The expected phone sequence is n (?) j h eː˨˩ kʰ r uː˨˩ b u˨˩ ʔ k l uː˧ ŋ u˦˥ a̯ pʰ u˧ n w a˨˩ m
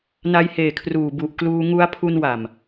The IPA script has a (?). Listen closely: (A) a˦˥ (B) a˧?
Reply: B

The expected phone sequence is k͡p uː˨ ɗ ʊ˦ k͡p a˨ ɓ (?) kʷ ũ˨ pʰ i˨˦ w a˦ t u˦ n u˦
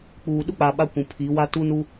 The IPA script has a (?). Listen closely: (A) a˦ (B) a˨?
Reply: A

